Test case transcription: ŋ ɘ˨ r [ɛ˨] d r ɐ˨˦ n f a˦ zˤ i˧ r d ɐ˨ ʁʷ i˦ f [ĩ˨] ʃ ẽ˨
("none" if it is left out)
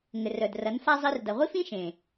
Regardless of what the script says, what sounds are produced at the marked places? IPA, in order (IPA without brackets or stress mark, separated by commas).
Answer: œ˨, ĩ˦